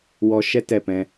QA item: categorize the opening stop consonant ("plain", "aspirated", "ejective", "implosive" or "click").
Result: plain